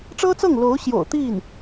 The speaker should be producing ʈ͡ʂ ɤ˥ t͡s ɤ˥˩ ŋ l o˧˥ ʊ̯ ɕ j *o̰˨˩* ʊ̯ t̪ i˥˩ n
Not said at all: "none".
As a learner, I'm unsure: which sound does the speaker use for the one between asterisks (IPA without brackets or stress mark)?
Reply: o̰˨˩